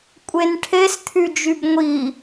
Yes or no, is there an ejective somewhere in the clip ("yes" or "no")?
yes